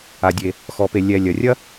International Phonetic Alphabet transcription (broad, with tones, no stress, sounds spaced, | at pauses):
a˩ dʲ e˩ | x ɔ˩ p e˩ lʲ ɛ˩ lʲ ɐ˩ rʲ ɐ˥